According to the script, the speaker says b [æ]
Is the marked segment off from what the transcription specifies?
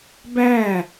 no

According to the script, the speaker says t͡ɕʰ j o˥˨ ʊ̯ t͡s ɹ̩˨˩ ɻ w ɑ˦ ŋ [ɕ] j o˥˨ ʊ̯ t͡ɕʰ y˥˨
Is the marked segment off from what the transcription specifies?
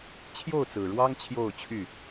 yes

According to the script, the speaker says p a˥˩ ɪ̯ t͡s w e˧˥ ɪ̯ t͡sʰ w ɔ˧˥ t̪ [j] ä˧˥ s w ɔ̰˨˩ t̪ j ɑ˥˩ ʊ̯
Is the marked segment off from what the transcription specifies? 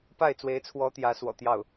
no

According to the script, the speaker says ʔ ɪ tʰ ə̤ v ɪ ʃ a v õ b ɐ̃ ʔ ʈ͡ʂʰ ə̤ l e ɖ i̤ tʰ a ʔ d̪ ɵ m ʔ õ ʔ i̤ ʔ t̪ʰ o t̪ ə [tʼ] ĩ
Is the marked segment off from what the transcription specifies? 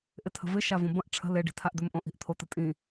no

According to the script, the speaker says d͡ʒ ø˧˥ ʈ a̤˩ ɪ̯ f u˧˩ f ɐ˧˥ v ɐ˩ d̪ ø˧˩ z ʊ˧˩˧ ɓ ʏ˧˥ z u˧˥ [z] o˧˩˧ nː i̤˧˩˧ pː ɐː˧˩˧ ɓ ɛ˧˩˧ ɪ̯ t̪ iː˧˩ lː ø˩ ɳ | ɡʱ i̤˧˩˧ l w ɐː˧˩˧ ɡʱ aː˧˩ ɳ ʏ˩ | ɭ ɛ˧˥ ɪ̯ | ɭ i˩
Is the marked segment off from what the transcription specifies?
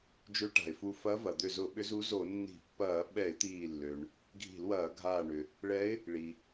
no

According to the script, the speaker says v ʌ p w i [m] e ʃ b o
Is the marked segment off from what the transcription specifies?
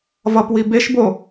yes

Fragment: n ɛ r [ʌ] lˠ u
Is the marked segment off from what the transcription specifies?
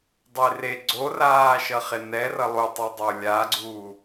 no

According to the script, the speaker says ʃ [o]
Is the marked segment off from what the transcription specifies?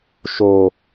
no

